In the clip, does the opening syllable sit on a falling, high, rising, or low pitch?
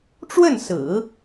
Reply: falling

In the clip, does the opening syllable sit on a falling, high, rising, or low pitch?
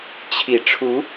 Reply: low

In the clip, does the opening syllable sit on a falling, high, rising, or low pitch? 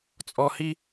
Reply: low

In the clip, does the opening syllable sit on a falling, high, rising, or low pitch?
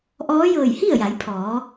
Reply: rising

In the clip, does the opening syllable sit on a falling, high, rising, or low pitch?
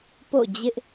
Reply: falling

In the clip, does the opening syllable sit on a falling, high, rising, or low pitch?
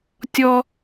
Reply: high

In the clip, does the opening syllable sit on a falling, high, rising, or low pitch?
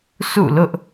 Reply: falling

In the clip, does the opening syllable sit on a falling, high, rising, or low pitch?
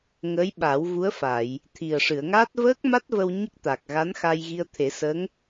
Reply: rising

